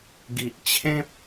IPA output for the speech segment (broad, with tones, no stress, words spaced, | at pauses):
ɡi˨ʔt͡ɕʰẽ˦p̚